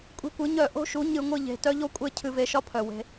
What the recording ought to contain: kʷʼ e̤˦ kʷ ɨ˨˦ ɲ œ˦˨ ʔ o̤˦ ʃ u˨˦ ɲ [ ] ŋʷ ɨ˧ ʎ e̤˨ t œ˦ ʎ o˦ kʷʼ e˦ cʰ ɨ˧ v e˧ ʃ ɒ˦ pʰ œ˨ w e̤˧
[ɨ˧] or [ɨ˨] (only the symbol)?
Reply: ɨ˧